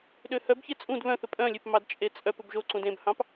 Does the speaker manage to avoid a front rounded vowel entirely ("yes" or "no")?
no